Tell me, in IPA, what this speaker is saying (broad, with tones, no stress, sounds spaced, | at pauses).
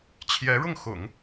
t͡ɕʰ j ɛ˧˥ ɻ ʊ˥˩ ŋ x ʊ̰˨˩˦ ŋ